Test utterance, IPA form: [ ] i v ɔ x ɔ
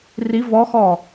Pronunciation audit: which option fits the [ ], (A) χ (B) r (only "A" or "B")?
B